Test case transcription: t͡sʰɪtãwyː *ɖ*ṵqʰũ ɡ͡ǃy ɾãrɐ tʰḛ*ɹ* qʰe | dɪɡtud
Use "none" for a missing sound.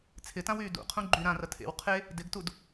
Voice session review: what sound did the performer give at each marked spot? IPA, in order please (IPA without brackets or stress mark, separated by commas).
d, w